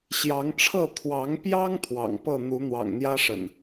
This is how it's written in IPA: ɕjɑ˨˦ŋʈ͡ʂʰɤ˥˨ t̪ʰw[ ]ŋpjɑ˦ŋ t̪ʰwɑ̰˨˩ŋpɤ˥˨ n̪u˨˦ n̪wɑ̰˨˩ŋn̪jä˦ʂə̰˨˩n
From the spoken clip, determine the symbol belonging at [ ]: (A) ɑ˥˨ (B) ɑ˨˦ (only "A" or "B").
B